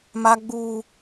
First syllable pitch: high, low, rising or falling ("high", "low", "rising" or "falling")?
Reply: high